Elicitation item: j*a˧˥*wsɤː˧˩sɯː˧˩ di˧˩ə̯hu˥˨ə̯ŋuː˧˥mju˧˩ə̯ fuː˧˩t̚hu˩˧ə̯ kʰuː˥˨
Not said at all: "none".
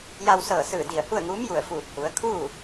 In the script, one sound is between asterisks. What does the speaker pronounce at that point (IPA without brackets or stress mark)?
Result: a˧